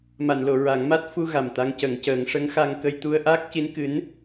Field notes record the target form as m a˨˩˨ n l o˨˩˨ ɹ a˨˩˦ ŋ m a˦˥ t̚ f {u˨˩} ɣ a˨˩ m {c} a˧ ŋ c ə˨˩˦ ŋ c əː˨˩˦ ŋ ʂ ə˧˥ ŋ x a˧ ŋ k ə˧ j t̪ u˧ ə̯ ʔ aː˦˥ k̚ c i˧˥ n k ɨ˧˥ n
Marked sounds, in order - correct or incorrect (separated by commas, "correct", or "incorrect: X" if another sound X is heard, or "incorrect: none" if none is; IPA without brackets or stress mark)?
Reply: incorrect: u˧, incorrect: t̪